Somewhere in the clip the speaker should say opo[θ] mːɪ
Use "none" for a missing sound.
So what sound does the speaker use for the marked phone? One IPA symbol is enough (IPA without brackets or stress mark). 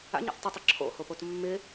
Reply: t